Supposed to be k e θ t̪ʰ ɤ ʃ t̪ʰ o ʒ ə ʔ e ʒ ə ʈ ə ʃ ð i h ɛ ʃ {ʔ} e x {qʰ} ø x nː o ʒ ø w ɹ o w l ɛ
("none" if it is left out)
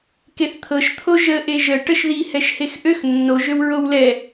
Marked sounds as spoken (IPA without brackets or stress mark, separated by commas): h, ʔ